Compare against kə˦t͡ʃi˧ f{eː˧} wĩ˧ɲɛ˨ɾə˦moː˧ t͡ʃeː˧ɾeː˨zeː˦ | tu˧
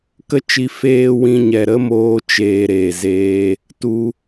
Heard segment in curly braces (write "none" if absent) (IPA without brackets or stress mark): eː˧